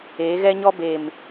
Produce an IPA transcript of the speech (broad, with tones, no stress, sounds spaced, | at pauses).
eː˨˦ ɣ ɛ˦ ɲ ɔ˦ b e˨ m